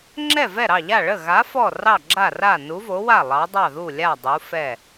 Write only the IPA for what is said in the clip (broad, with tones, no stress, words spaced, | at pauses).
ŋ͡ǁɛ˥˩vɛ˥˩ɾɑ˥˩ʎa˥˩ ɭə˥˩ɣa˨˥ fɔ˥˩rɑ˥˩ɡ͡ǁa˥˩ra˥˩ nu˨˥vo˨˥wa˥˩ lˠɑ˨˥dˤɑ˥˩ðu˥˩lʲa˥˩ dˤu˨˥fɛ˥˩